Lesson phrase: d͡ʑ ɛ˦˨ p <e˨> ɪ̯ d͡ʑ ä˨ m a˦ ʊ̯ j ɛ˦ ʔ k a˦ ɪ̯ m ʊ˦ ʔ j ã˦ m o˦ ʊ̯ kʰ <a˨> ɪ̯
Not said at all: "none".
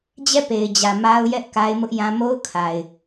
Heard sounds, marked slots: e˨, a˨

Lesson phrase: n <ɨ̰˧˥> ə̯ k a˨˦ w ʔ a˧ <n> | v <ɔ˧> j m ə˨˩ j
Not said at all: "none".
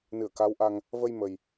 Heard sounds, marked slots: ɨ˧˩, ŋ, ə˧

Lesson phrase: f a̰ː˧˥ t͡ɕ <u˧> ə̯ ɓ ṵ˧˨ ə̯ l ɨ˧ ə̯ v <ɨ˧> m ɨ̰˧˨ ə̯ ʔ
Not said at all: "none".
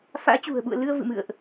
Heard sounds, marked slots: ṳ˨˩, ɨ̰˧˨

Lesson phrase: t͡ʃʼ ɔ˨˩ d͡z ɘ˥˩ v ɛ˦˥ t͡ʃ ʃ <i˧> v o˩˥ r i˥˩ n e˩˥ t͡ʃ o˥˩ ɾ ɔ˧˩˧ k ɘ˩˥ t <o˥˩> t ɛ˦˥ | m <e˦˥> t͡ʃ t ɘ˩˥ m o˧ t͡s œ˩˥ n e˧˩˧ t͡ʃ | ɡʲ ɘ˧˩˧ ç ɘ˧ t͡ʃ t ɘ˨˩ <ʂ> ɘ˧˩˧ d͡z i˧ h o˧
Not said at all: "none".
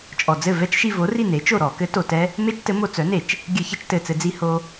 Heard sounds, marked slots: i˧, o˨˩, e˦˥, t͡s

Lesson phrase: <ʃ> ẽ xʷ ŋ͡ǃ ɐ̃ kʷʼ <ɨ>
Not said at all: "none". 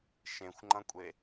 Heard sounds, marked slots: ʃ, e

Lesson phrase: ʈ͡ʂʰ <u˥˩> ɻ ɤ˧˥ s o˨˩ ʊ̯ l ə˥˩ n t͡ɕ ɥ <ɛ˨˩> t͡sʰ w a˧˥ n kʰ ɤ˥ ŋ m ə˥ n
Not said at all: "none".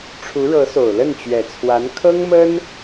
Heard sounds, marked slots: u˧˥, ɛ˨˩

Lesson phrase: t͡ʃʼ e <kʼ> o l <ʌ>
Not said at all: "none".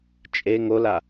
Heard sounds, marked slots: ŋ, a

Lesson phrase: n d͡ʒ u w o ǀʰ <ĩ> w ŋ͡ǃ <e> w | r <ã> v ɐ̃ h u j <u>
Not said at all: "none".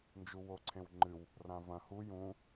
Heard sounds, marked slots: ẽ, ɨ, ã, ũ

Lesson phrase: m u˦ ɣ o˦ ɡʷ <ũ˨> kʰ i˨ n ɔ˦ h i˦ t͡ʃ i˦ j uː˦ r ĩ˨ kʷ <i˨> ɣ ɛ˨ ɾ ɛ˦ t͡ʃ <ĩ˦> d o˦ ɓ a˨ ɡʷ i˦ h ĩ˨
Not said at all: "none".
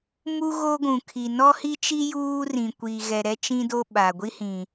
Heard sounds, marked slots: ũ˨, i˨, ĩ˦

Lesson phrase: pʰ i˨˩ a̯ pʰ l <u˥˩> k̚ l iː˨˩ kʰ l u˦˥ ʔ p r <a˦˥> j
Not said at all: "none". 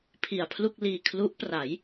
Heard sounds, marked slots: u˥˩, a˩˦

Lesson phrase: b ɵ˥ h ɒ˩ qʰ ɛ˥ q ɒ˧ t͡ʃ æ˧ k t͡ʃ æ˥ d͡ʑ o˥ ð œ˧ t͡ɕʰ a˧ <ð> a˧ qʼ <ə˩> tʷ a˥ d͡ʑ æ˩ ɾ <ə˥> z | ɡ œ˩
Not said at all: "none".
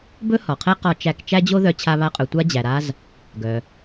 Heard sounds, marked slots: β, ɵ˩, a˥

